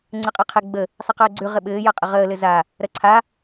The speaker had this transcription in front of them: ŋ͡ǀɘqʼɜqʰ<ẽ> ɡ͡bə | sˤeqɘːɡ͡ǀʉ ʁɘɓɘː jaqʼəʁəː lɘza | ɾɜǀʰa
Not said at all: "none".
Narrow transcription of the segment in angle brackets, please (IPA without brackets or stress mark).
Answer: e